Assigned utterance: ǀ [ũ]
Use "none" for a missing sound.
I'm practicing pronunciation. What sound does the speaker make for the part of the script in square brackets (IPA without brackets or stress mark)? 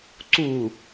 u